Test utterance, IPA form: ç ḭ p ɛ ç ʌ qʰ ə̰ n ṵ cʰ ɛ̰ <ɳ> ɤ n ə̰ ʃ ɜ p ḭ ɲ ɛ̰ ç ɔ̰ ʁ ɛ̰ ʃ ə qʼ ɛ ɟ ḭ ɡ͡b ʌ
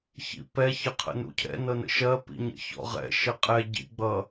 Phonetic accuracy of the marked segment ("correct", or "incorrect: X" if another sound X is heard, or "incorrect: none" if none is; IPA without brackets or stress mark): incorrect: n